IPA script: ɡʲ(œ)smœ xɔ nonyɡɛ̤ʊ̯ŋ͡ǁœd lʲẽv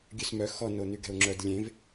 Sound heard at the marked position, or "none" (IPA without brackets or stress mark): ø